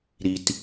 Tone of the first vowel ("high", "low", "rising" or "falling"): low